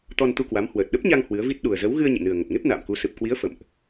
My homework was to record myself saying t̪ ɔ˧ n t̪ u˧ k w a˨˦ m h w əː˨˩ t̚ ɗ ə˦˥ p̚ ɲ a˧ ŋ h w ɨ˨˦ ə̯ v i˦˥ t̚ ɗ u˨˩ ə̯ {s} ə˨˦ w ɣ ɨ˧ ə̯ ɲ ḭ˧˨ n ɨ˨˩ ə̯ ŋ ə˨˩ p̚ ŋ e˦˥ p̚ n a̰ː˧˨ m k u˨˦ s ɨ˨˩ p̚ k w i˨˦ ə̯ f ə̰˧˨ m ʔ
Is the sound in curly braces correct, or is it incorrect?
incorrect